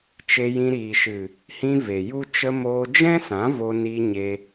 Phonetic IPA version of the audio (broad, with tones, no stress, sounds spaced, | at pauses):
t͡ʃ e˧ j ĩ˧ ɾ iː˨ ʃ ɨ˨ | h ĩ˧ v e˨ j u˦ t͡ʃ ə˧ m oː˧ d͡ʒ ɛ̃˦ s ã˨˦ v o˧ n i˧ ɲ e˧